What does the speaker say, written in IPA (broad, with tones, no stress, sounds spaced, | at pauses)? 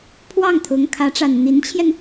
pʰ w ɑ˥˩ ŋ t̪ʰ ʊ˧˥ ŋ kʰ ä˧˥ ʈ͡ʂ a˨˩ n n̪ i˧˥ n t͡ɕʰ j ɛ˧ n